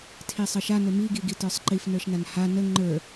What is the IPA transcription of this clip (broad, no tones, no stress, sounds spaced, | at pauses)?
tʰ i sˤ ɘ ʃ a n ɘ m i ɡ i ɡ i t ə˞ sˤ ǃ i f n ə˞ ʃ n a n h a n ə ŋ͡ǃ ə˞